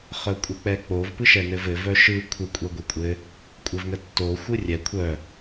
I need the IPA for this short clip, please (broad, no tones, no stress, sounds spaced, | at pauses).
χ œ kʷʼ ɘ k͡p ɛ k͡p o v p ɯ ʃ ɛ n ɘ v ɘ v œ ʃ ɯ kʷʰ ə kʷʼ ɛ ɡʷ ɛ kʷʼ ɘ | kʷʼ ɘ v ŋ ə tː o xʷ ɯ rʲ ɛ kʷʰ œ